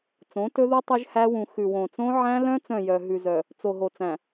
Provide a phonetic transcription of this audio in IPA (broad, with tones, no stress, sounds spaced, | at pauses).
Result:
t͡s õ˨˦ t ɵ˦ ð u˦ tˤ ɵ˦ ʒ h æ˦ w ũ˨ x ʉ˨ w õ˨ t͡s õ˦ ʕ æ̃˦ l œ̃˦ t͡s œ̃˦˨ j œ˨ ɦ ʉ˨ z œ˨ | t͡s o˨ ɦ o˨ t͡s æ̃˨